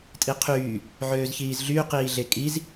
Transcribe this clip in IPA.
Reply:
tʼ i qʰ yː | ʕ øː z ç iː z ɮ yː q iː ɮ e kʼ i z

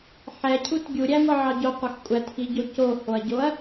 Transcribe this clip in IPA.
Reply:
ħ ɛ cʰ u t ɡʲ u ɾʲ æ ŋʷ ɑ ʕ ɑ ɟ o qʷ a x kʷʼ æ t x i ɟ o c o h o ɐ̯ ɟ o ɐ̯

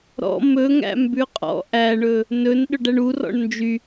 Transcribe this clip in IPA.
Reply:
ɾ ɔ̰ m ɵ ŋ æ̰ m b ʉ qʼ ɔ̰ ʔ æ ɳ ɵ | n ɵ n ɗ ɵ ɖ æ ɳ u r ɔ̰ ɳ n d͡ʒ y

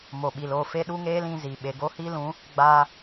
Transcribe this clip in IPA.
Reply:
m o˨ ɓ i˨ l o˦˨ f e˦ ɗ u˦ ŋ eː˦ l ĩ˧ z i˨ ɓ e˨ ɡ o˦ h i˦ l ũ˨˦ | ɡ͡b aː˧

